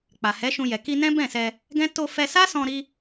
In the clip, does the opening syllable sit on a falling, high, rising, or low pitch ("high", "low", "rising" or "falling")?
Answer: low